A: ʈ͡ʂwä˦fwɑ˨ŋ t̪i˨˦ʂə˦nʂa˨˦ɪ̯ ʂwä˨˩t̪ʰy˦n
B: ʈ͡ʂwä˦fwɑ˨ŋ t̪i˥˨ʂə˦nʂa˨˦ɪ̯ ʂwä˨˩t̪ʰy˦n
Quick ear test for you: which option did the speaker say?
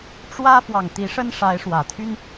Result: A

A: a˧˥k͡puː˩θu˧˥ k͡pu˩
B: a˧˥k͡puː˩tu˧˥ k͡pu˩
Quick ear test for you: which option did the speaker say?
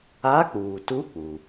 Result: B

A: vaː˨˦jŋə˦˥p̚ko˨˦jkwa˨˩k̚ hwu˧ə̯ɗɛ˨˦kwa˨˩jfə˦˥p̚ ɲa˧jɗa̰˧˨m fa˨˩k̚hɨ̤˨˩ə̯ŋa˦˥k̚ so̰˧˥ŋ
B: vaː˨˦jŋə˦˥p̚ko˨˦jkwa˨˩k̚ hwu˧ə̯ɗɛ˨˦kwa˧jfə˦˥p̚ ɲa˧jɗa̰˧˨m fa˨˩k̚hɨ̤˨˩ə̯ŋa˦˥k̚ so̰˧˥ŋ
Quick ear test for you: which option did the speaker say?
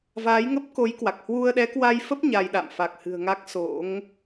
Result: B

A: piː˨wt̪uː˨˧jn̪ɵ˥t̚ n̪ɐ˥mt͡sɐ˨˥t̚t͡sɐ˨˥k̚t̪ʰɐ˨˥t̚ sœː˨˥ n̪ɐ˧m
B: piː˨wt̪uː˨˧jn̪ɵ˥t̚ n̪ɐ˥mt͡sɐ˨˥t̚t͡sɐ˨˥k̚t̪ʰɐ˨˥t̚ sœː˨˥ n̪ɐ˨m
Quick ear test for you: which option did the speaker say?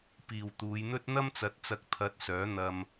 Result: A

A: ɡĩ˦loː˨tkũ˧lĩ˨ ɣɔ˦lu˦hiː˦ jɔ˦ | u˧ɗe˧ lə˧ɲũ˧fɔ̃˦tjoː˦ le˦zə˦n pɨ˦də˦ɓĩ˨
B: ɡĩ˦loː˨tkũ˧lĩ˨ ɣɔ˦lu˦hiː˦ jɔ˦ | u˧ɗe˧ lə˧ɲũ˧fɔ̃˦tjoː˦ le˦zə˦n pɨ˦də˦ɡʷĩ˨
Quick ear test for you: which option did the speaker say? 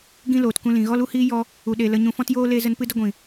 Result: B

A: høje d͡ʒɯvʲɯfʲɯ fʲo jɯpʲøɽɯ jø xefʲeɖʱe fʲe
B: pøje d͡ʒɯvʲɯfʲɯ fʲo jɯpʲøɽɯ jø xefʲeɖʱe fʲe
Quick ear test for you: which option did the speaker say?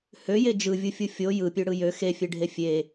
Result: A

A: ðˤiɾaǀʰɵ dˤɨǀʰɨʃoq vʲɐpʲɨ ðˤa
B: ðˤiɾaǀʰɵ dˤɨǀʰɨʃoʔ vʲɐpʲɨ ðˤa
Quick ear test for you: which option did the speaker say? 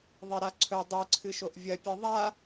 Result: B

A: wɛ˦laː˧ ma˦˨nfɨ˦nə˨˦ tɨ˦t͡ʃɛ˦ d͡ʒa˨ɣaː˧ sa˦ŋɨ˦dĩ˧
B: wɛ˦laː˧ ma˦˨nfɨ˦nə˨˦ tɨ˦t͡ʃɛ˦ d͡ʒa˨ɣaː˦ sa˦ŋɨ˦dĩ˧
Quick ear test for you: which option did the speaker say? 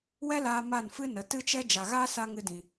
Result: B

